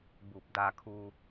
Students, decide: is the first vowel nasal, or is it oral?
oral